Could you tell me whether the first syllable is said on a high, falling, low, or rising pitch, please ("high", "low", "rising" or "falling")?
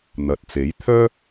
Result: low